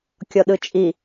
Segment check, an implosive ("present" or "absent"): present